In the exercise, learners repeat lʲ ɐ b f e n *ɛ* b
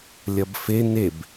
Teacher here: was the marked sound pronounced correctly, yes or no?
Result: no